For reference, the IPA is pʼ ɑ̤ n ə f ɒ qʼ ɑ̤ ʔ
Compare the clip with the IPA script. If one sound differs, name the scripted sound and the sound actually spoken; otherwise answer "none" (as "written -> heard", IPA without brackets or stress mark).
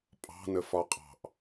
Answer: none